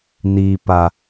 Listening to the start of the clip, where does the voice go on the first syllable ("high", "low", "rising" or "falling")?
low